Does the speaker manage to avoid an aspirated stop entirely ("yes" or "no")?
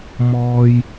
yes